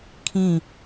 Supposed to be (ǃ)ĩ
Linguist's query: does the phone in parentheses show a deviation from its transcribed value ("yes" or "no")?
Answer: yes